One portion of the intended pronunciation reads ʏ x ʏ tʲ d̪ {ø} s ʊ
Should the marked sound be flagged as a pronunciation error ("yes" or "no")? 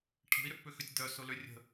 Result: yes